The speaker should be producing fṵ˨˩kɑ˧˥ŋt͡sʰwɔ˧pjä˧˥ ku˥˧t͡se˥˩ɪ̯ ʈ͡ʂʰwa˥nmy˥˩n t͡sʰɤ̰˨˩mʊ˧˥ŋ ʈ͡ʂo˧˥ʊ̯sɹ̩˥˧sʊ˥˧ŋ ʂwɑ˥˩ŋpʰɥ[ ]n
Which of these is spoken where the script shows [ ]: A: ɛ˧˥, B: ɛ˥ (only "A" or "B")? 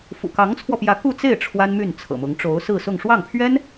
B